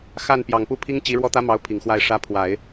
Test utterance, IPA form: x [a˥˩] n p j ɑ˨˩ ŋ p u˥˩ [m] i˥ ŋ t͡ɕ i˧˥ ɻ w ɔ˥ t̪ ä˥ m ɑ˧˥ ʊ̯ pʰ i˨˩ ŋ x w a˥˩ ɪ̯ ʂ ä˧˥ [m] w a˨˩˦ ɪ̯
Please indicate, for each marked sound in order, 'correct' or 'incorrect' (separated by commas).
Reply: correct, incorrect, incorrect